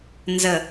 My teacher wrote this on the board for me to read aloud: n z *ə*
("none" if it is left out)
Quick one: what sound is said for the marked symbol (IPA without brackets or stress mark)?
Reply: ə